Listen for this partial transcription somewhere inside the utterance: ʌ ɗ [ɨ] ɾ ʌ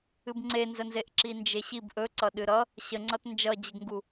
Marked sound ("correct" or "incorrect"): correct